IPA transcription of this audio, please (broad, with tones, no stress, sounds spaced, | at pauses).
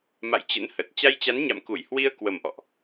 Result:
m a̰˧˨ j t͡ɕ ə̰˧˥ n h ə˨˩ t̚ t͡ɕ a˧ j t͡ɕ a˨˦ n ɲ a̰˧˨ m k u˧˩ j h w i˧ ə̯ k w ə˨˩ m ʔ ɔ̰˧˨ ʔ